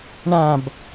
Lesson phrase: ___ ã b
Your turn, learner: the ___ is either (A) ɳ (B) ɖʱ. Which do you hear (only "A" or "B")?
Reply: A